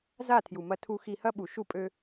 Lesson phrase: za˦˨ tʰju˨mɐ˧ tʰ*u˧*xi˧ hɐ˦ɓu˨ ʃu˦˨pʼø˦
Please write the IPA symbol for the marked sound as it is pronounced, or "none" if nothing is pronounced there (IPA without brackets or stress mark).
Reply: u˧